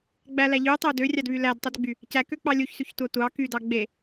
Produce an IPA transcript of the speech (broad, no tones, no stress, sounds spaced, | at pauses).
ɡ͡b æ l æ ʎ y tˤ ø d ø rʲ ɑ d β y l æ d tˤ u d ɡ͡b y | c æ k ø k͡p ɑ lʲ u ç s y ç tʷ ɑ tʷ ɑ k y d ɑ ɡ͡b e